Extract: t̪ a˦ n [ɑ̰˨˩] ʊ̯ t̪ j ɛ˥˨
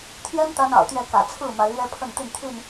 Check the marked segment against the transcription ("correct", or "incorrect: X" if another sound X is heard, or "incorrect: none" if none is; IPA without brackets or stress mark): correct